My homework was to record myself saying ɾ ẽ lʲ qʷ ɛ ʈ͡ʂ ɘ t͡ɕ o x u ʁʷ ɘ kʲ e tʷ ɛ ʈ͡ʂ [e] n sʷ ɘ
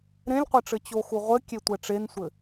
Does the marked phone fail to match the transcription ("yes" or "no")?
no